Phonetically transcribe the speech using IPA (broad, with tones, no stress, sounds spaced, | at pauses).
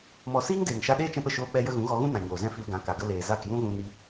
m ɔ˧ s iː˦ ŋ d eː˨ ŋ ʃ a˧ ɗ eː˦ t͡ʃ ɛ̃˧ p ə˨ ʃ oː˧ k͡p ɛ˧ j ə˦ ɣ ũ˨˦ ɣ ɔ˧ ɣ ũ˦ n ã˨ ɲ oː˨ z ɛ̃˦ f i˧ l ɡ ã˨˦ k a˨ ɡ ə˧ l eː˨ z a˦˨ k j ũ˦ ɣ ũ˧ n i˧